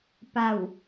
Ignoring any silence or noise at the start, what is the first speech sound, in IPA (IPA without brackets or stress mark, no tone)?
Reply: p